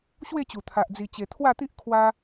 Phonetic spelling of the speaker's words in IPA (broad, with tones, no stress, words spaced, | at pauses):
ɕwe˥˧t͡ɕu˨˩t̪ʰa˨ʔ d͡zi˨˩t͡ɕe˨˩ t̪ʰwa˥˧t̪i˦ʔ kʰwa˧